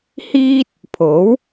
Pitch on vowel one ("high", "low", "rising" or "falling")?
high